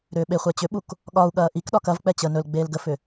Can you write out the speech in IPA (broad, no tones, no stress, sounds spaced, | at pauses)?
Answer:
ɾ ʏː ɓ e χʷ ɛ t͡ɕ ʏ ɓ u k | ɠ ɒ u̯ ɠ ɐː ʔ i k ɗ ɒ k ɐ v k͡p ɛ t͡ɕ ə n ɵ l ɡ͡b eː l ɡ ə f ʏ